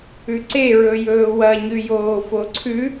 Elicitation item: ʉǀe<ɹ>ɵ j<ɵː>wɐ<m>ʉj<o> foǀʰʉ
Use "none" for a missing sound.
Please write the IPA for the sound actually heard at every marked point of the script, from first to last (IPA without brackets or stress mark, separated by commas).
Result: ɹ, ɵː, ɲ, oː